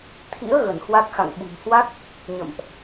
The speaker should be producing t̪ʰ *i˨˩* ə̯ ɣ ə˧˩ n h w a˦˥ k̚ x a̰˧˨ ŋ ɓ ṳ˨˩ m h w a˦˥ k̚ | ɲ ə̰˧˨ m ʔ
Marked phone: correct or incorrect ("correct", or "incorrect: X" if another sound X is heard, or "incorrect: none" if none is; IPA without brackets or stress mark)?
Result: incorrect: ḭ˧˥